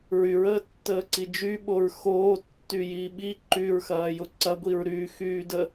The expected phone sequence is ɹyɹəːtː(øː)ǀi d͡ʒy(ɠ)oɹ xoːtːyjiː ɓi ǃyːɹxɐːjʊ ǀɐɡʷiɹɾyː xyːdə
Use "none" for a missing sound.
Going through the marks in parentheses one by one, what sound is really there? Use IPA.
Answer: əː, ɓ

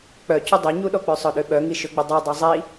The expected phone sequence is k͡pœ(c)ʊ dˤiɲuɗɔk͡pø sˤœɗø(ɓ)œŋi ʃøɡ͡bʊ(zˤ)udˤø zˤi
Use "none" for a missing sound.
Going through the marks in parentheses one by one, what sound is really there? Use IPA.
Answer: c, ɓ, dˤ

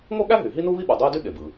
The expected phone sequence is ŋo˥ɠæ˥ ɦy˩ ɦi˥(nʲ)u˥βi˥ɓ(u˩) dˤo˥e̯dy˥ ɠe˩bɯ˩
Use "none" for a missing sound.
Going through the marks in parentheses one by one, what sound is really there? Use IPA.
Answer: n, u˩

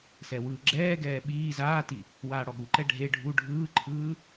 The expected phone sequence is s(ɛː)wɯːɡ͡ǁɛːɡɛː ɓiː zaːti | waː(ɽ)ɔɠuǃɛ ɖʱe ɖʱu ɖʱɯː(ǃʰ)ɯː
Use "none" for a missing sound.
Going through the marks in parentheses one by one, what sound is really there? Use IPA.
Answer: ɛ, ɽ, ǃʰ

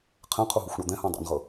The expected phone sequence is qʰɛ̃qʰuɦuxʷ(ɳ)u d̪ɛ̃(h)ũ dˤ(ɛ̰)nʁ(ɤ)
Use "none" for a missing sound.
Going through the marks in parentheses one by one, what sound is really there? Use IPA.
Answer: ɳ, h, ɛ̰, ɤ

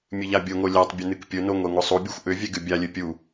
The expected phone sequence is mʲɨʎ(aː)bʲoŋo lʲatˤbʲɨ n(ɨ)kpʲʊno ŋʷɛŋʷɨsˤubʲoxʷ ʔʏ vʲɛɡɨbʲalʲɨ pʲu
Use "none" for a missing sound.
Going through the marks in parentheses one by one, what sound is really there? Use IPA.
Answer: a, ɨ

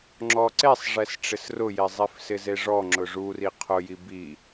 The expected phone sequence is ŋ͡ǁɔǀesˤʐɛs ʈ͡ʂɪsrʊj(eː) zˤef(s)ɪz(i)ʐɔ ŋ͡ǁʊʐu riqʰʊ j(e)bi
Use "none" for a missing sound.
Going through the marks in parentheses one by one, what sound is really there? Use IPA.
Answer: e, s, e, i

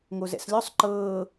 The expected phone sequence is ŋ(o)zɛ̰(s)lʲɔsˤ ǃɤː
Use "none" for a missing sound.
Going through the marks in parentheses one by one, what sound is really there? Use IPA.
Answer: o, s

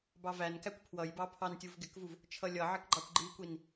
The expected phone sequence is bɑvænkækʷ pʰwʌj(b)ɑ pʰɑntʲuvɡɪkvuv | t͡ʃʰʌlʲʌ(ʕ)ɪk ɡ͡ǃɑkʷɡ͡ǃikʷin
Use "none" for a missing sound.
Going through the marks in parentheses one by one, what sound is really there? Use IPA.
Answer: b, ʕ

